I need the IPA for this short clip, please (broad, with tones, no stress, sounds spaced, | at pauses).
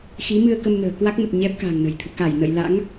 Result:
x i˨˦ m ɨ˧ ə̯ k ə˧ m n ə̤ː˨˩ k w a˦˥ k̚ m ə˨˩ t̚ ɲ ɛ˦˥ p̚ k a̤˨˩ ŋ n ə̤˨˩ j t̪ʰ ɨ̰˧˨ k a˧˩ j n ə̰˧˨ j l a̰˧˥ ŋ